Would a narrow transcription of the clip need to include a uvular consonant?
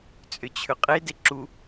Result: yes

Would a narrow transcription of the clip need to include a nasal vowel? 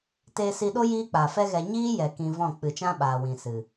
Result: yes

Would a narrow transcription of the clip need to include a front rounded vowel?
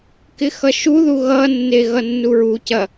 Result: no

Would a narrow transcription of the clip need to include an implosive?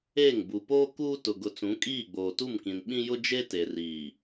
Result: yes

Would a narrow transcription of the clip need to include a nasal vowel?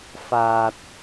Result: no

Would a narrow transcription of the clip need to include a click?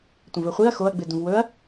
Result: no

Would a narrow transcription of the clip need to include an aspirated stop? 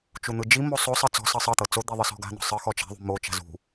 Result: no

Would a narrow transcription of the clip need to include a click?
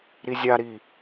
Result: no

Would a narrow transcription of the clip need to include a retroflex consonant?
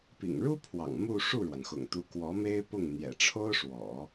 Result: yes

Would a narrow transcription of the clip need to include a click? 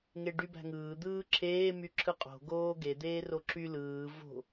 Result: yes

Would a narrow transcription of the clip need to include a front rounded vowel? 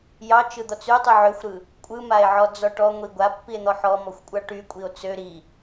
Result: yes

